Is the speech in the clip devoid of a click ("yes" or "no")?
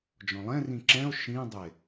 no